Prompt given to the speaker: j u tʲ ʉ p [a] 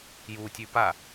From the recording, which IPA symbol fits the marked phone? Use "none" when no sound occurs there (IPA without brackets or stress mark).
a